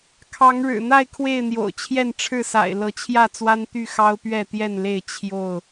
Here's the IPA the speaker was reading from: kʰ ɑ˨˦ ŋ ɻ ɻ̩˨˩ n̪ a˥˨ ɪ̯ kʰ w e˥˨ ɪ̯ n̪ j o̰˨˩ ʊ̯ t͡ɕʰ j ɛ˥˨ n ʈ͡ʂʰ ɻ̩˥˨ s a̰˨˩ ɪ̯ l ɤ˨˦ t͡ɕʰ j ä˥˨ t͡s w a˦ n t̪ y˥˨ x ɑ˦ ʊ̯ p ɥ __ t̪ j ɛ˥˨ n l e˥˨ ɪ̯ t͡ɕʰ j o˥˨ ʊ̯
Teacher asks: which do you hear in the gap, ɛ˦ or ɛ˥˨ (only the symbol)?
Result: ɛ˥˨